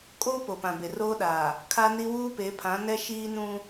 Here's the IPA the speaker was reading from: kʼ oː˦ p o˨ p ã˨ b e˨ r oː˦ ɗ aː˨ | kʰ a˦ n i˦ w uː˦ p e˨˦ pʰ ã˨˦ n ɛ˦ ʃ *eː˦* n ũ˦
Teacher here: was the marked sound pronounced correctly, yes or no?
no